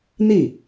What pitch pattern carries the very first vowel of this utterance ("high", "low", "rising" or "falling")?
falling